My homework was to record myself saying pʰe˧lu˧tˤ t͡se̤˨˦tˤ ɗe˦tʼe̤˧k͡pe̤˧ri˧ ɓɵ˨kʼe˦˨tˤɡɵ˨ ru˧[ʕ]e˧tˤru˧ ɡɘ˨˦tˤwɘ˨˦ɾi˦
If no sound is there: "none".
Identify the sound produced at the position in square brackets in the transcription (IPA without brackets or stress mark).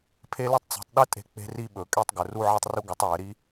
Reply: ʕ